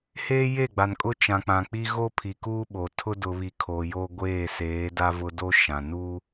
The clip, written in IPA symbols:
h eː˦ j e˦˨ ɡ͡b a˨ n kʼ ʊ˦ t͡ʃ ã˨ k͡p ã˨ k͡p i˦ ɣ o˦ pʰ i˨ k uː˦ ɓ o˨ tʰ ʊ˦ d ʊ˨ β i˨ kʰ o˨ j o˦ ɡʷ eː˦˨ s eː˨˦ d a˦ v ʊ˦ d o˦ ʃ ã˨ n uː˦

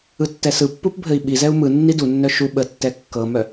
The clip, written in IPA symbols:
ɯ tː ɛ s ɯ pː u p bʱ ɘ i̯ ɓ i z ɛ u̯ m ɯ nː i d u nː œ ʃ u ɓ ə tː ɛ kː ɤ m œ

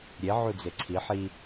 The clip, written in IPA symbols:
ɾʲ e ʕ u d͡z e ǀʰ i ħ i

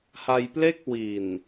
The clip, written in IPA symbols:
h a˧ j p l e˥˩ k̚ w i˨˩ n

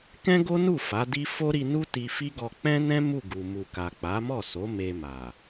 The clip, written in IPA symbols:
k ɛ̃˦ ɡ o˦ n u˦˨ f a˨˦ d i˦ f o˦ ɾ i˧ n u˦ t i˧ f i˦ ɡ ɔ˧ k͡p ɛ̃˦ n ɛ̃˦ m u˦˨ ɡ u˨ m u˨ k a˨ k͡p a˨˦ m ɔ˦˨ s o˨˦ m e˧ m a˨

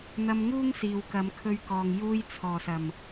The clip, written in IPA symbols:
n̪ ɐ˧ m ŋ uː˥ ŋ s iː˨ w k ɐ˨˧ m kʰ ɵ˧ ɥ k ɔː˨ ŋ j uː˧ j t͡sʰ ɔː˨˩ s ɐ˨˩ m

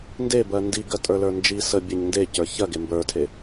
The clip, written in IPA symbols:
n d e b ɜ n d i ɡ ɜ tʼ ə˞ l ə˞ n d͡ʒ i s ə bʲ e ɲ n d e c ə˞ ç ɜ ɡ e m b ə˞ tʰ e

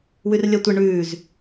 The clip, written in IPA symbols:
w ʉ r lʲ ɒ tʷ ə ɳ ʉː z

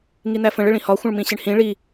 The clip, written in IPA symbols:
ŋ i n̪ æ f ə̃ ɭ ɪ ɭ ĩ h ɒ xʷ ə̃ ɭ m ĩ ɕ ɪ ɳ h ĩ ɭ i

